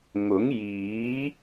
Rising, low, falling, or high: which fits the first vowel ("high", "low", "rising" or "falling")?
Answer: rising